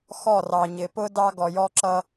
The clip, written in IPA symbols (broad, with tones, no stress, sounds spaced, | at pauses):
x ɔ˦˨ r ɑ˨ ɲ ɪ˨ p ʊ˦ d ɑ˦ ɡ ɔ˨ j ɔ˦ ǁ ʌ˦